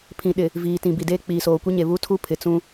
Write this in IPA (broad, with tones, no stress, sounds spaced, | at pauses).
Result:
pʰ ĩ˨ ɗ ɪ˨ | v iː˨ t ĩ˨ b i˨ d eː˦ k͡p iː˨ s oː˨ kʷ i˦ ɲ e˨ β uː˦ tʰ u˦ pʰ ɪ˨ t͡s ũ˦